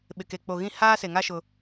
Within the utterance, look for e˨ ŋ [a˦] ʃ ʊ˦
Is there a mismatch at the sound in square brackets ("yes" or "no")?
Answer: no